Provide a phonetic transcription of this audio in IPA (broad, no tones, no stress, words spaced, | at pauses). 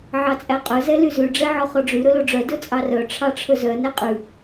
ʕɑt͡sʼæqʼɵ zɛlyzʉ ɖ͡ʐɛʕɔχɔɖ͡ʐy ɾɵloɖ͡ʐœ dɵt͡sʼɑrœ ʈ͡ʂʰɑʈ͡ʂʰɵzœ nɛqʼʉ